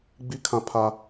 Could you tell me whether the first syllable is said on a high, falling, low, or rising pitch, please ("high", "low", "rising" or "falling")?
high